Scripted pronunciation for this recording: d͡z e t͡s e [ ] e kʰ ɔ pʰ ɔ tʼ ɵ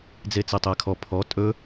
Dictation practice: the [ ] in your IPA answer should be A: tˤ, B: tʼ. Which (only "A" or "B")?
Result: A